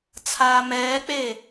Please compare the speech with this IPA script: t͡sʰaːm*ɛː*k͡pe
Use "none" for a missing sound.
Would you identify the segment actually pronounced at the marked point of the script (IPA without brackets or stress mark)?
ɛː